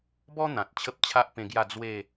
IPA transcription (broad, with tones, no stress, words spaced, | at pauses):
bɔ˦ n̪ã˨t̚ t͡ɕʰə˦p̚t͡ɕʰa˦ʔpẽ˧ɡja˥˧ d͡zwe˥˧